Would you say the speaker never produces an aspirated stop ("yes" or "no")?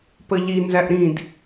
yes